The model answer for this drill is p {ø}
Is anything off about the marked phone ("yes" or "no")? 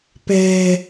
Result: yes